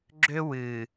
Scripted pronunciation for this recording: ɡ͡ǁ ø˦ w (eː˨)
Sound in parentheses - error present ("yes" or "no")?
yes